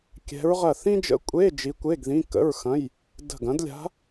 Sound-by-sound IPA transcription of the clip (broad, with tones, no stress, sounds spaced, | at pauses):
kʲ ɛ̤˧˥ ɹ ʁ ɐ˦˨ θ ĩ˥ d͡ʒ ə̰˧˥˧ kʷʼ e˧˥˧ d͡ʒ i˧˥ kʷ e˧˥˧ ɡ ð ĩ˧˥˧ k ə̰˧˥˧ ɹ x ɐ̃˧˥˧ j | d ə̤˦˨ ɡ ɐ̃˧˥ d lʲ a̤˧˥